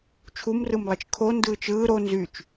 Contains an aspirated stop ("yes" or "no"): yes